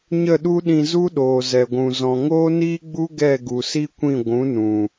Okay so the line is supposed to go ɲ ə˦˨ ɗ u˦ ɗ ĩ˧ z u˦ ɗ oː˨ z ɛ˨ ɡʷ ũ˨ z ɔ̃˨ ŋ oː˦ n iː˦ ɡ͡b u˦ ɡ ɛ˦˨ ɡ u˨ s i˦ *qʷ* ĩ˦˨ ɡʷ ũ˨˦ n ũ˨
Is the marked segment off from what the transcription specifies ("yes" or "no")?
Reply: yes